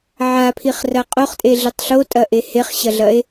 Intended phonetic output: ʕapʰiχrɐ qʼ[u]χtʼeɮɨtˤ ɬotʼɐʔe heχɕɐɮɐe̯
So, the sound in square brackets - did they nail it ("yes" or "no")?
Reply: no